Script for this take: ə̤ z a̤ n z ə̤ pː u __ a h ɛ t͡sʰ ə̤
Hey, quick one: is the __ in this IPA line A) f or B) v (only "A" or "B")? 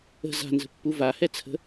B